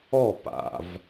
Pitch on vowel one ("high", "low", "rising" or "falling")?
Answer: falling